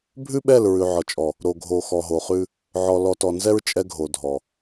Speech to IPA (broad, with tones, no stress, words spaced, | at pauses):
bʱʉ˦ɓɛ˦˨l ɹʉ˨ʕɔ˨t͡ʃʼɔ˨ | ɾo˨ɡʱo˨ xɔ˨ɦo˨χʉ˦ | ʕɔ˨lɔ˨tɔ˨nzɛ˦ɹ t͡ʃʼɛ˦ɡʱo˨dʱɔ˨